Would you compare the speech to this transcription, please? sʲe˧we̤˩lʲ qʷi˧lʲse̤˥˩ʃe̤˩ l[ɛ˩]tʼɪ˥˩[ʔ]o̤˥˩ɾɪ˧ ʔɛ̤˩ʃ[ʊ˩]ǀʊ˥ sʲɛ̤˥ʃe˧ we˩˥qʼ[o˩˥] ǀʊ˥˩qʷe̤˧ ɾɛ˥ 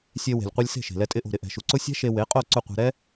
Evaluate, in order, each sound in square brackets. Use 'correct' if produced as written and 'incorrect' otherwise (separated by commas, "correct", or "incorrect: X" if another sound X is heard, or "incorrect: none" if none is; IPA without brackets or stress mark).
incorrect: ɛ˧, correct, incorrect: u˩, incorrect: o˥˩